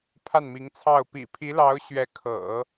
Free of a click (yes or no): yes